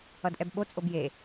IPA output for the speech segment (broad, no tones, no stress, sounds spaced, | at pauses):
ʌ d ʔ ɛ b ɓ o t͡sʼ o b j e